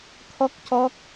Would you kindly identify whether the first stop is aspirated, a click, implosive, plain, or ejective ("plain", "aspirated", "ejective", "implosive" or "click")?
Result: aspirated